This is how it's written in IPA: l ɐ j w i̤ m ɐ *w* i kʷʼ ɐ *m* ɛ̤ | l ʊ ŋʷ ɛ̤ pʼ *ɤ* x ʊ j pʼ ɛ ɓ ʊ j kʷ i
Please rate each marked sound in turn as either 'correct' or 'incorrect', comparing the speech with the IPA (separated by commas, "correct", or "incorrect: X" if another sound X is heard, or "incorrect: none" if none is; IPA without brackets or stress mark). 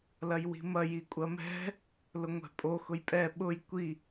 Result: incorrect: j, correct, incorrect: o